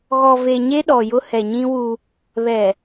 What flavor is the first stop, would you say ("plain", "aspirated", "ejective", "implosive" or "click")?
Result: implosive